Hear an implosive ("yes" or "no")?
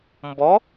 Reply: no